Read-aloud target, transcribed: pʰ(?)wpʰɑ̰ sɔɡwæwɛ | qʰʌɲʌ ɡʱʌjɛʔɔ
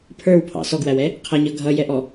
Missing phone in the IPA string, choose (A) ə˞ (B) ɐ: A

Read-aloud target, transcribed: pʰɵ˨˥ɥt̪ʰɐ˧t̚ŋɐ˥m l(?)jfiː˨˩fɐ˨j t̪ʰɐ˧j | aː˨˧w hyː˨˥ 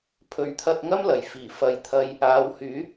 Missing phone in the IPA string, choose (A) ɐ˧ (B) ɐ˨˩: B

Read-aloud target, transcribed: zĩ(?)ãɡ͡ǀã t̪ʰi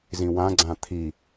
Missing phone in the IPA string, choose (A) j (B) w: B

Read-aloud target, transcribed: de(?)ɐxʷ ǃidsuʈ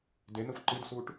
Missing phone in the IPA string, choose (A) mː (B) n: B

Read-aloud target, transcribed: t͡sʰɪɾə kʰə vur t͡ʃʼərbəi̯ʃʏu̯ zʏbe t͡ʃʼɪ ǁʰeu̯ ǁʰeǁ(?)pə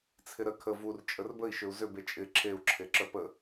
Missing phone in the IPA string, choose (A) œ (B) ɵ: A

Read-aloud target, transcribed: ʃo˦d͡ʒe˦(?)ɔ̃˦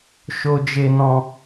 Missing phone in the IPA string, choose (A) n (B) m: A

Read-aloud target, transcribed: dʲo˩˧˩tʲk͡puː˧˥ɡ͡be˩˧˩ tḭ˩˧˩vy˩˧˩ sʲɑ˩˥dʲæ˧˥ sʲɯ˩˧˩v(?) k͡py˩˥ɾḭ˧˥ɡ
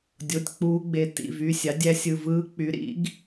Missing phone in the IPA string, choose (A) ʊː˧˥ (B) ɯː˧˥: B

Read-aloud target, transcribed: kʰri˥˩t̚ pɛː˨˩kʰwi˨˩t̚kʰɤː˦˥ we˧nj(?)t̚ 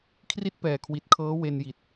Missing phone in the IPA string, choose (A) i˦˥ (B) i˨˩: B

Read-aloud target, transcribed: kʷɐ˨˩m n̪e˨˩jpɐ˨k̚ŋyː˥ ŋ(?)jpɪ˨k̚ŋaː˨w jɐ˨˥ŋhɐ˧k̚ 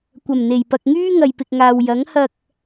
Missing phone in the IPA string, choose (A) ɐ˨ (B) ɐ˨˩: A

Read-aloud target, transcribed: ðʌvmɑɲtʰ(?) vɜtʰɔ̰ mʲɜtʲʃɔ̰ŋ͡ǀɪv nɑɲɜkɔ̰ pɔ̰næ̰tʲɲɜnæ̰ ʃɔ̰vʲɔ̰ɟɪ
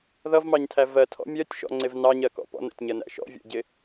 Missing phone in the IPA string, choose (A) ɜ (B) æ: B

